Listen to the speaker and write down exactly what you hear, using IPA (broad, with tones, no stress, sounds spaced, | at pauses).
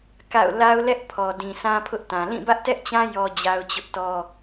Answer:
k a̰˦˨ ʊ̯ l a˦ ʊ̯ l ɛ˦ ʔ pʰ ɔ˨ d ĩ˨ s ã˦ pʰ ʊ˦ ʔ t ã˨ l ĩ˦˨ b ä˦ ʔ t ɛ˦ ʔ t͡ɕ ã˦ j ɔ˦ d͡ʑ a˦ ʊ̯ t͡ɕ ʊ˦ ʔ t ɔ˦